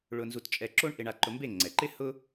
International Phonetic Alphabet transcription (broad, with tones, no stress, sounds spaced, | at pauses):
ɭ ʊ˧ n z u˧ t t͡ʃʼ ɛ˧ ǁ o˥ ɳ ʔ e˧ ɳ a˧ ǃ ʊ˧ m b e˥˩ ŋ͡ǀ ɛ˩ ǃ ɪ˥ h ʊ˥